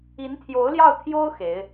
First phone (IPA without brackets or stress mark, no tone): i